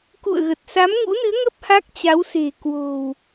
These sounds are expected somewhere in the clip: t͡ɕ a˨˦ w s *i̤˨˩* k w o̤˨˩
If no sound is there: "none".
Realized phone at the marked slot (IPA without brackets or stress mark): e̤˨˩